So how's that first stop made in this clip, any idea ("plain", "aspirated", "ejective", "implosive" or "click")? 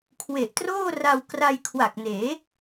aspirated